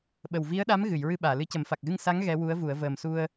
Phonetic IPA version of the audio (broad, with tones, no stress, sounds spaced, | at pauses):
ɓ ə˨˩ w v i˧˥ ə̯ ɗ a˧˥ m ɣ ɨ˨˩˨ j ɹ ɨ˧ ɓ aː˨˩˨ l ɨ˧ c ə˨˩˦ m f a˨˩ k̚ ɣ ɨ˧ ŋ s a˧˥ ŋ ɣ ɛ˧˥ w u˧˥ ə̯ v u˨˩˦ ə̯ v əː˨˩ m s u˧ ə̯